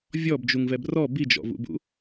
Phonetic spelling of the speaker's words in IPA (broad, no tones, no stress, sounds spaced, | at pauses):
vʲ ɔ b d͡ʒ u ŋ v ɛ b r ɔ b i d͡ʒ ɔ̰ v ṵ b ṵ